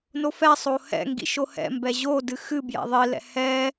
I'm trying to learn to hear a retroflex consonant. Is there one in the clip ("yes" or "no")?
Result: no